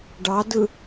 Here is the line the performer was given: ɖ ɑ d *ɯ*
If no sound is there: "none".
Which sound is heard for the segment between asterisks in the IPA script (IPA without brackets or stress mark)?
ɯ